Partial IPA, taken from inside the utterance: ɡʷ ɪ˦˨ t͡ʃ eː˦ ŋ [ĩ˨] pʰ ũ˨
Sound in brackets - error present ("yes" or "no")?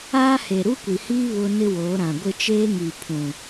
yes